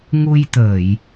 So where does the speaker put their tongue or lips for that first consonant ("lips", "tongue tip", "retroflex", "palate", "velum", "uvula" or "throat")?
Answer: velum